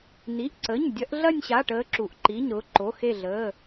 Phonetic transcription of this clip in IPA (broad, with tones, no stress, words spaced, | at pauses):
ni˩˧˩ʔǀə˩˧˩ɲ dʲɐ˨˦ʔɮɐ˥˧nʲɕa˩˧˩ ʈəː˨˦ǁu˩ʔ ǃi˩˧˩ɲɾʊː˨˦ǃo˩˧˩ xe˧˩ɮəː˩˧˩